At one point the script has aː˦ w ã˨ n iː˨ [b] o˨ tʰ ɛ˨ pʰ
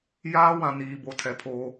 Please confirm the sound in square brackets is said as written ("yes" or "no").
yes